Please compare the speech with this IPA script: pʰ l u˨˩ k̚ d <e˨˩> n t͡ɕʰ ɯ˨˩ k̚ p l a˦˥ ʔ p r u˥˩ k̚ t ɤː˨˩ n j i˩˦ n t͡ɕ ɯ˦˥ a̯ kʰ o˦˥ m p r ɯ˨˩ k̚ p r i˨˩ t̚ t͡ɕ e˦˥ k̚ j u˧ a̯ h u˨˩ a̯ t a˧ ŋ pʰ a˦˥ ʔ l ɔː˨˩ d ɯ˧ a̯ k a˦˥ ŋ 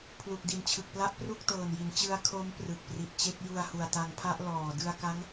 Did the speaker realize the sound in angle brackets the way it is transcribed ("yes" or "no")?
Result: no